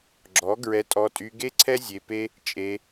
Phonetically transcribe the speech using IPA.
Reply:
ɡ͡ǁ ɔ˨˦ ɡ ɹ ɛ˧ tʼ ɔ˧ tʼ y˧ ɡ e˦ ǀʰ ɛ˦ zʲ e˧ p e˦ | t͡ʃʼ e˧

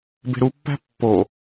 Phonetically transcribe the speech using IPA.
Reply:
b e̤ ɾ u pː æ̤ pː o

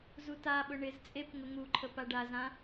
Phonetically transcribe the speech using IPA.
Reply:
z u t a ɓ ʊ ɳ ɪ z t͡sʼ e p ŋ ʊ ŋ u ǃʰ ə p a ɖ a z ã

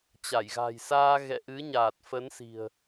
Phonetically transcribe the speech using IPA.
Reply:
t͡ɕ a˧˩ j ɣ a̤˨˩ j s aː˧ ɣ ɛ̰˧˨ ʔ ɨ˨˦ ɲ aː˨˩ t̚ f ə˨˦ n s i̤˨˩ ə̯

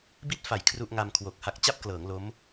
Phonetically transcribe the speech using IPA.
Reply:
b i˥˩ t̚ f a˨˩ j kʰ r u˥˩ ʔ ŋ a˧ m kʰ w o˨˩ k̚ h a˦˥ k̚ t͡ɕ a˥˩ p̚ k l ɤː˩˦ ŋ l o˦˥ m

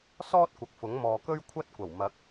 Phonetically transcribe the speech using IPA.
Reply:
s ɔː˥ t̚ kʷ ɐ˨˥ k̚ f ʊ˨˥ ŋ m ɔː˨ k ɵ˥ ɥ kʷʰ ɐ˥ t̚ kʷ ɐ˨˩ w m ɐ˨˥ k̚

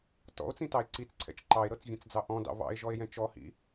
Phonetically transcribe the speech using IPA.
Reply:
t ɔ̰ o̯ t͡s ĩ t ɑ e̯ ǀ i t͡s ǀʰ ɛ̰ t͡ʃ ǃ ɑ e̯ ɾ ɤ t͡s vʲ ɛ̃ t͡s d͡z ɑ ʔ ɔ̃ d ɑ̰ β ɑ̰ e̯ ʒ ɔ e̯ j ɛ̃ t͡ʃ ɔ h ḭ

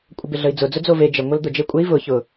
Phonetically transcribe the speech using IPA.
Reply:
kʷʼ ə b ɪ ɮ ə i̯ d͡z ʊ d͡z ʊ d͡z o v e d͡ʒ ə ŋʷ ə l d̪ ʊ d͡ʒ e kʷʼ e i̯ v ʊ ç ʊ

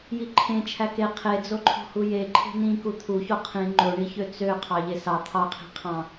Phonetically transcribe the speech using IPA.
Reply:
j i ǃʰ ẽ t͡ʃʰ æ k e qʰ e d͡z o ǃʰ o̤ h u j e ǃʰ e̤ n ĩ k u t̪ʰ u ç o qʰ ĩ ŋ͡ǃ o ɳ i ç ø t͡s ø qʰ ɑ ʎ e s ɑ t̪ʰ ɑ qʰ i̤ qʰ ɑ̃

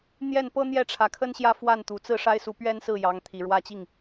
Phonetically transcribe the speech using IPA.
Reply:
n̪ j ɛ˥˩ n p ɤ˥ n̪ j ɛ˥˩ ʈ͡ʂʰ ä˨˩ kʰ ə˥ n ɕ j ä˥˧ f w a˥˩ n t̪ u˨˩ t͡s ɹ̩˥˩ ʂ a˥ ɪ̯ s u˧˥ p ɥ ɛ˥ n s ɹ̩˥˩ j ɑ˧˥ ŋ t̪ʰ i˨˩ ɻ w ä˥˧ t͡ɕ i˥˩ ŋ

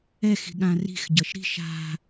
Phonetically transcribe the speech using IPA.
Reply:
ɛ x i̤ ɠ ã r i̤ x ɟ ʌ ʃ ɾ i̤ ʃ a̤

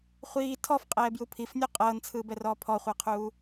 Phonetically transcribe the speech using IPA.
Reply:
χʷ iː tʰ ɔ f qʼ ɛː b j u pʰ i f nʲ u qʼ ɤː n t͡sʰ ɯː b ɛ r ɔː pʰ ɔ χʷ ɤ qʰ uː

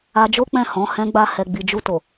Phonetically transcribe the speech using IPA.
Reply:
a˧ d͡ʒ o˦ k͡p ɛ̃˦˨ h ɔ̃˨˦ h ɛ̃˧ ɡ͡b a˧ h ɛ˨ ɡ͡b i˨ d͡ʒ u˧ t o˨

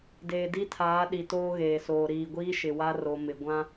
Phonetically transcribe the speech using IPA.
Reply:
d eː˨ d i˦ tʰ aː˨˦ ɗ i˨ t oː˦ ɣ eː˨ s oː˨ ɾ iː˨ ɡʷ iː˦ ʃ ɪ˨ w a˦ r o˨ m ɪ˨ ɡʷ ã˦

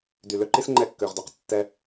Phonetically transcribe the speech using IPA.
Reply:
d y˨ l ø˦ ǃ i˥ s ŋ͡ǃ ɛ˦ kː ø˨ ʁ d ø˩ q tː ɛ˦

